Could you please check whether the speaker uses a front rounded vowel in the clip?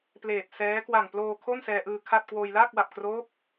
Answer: no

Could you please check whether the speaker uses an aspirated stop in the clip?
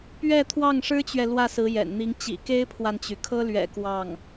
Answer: yes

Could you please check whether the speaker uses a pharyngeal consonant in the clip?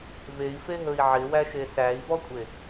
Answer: yes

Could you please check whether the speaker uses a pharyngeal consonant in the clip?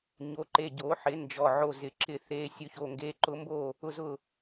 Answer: yes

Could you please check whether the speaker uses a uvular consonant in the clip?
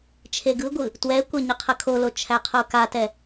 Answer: yes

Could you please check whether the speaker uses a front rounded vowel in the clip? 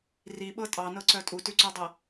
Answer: yes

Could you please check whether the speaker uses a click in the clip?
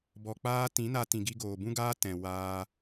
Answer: no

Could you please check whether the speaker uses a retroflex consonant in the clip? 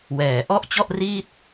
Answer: no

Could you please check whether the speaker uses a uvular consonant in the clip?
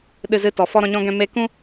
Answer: no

